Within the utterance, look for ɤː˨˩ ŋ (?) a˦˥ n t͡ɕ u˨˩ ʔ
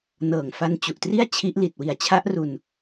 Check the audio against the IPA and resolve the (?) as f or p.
f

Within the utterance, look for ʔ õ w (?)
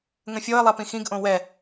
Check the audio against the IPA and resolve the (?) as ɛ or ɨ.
ɛ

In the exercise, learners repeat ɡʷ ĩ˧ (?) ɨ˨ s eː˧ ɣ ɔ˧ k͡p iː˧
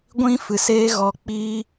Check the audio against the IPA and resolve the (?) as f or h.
f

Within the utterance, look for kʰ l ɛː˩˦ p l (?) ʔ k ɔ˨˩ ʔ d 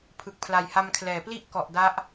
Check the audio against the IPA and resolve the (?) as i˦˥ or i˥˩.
i˥˩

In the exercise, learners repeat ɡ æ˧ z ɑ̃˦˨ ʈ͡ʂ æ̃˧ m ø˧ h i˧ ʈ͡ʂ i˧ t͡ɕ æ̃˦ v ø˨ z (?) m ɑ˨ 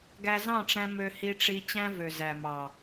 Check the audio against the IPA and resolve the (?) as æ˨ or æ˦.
æ˨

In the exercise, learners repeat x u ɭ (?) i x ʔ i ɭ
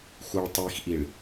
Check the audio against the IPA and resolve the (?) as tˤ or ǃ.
tˤ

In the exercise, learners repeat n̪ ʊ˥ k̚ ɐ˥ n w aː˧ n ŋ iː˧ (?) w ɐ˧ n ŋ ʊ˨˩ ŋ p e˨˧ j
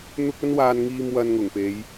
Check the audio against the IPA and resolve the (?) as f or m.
m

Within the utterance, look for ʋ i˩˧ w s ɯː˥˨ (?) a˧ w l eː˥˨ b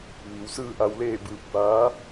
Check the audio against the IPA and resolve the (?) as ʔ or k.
ʔ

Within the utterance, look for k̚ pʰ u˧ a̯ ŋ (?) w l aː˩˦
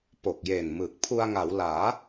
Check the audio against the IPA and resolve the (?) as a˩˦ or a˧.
a˩˦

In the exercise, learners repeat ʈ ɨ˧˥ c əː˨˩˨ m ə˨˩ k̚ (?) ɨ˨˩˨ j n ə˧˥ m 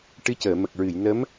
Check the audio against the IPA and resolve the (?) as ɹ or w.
ɹ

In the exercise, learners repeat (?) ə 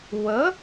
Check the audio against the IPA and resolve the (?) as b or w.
w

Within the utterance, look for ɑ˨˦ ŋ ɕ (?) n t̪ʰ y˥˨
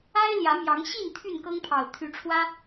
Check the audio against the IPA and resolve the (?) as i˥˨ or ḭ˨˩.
i˥˨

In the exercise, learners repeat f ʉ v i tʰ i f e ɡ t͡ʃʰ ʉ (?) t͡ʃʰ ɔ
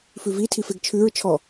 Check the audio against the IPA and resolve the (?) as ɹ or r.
ɹ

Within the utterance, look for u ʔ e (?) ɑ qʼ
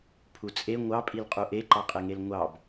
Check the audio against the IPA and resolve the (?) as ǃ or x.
ǃ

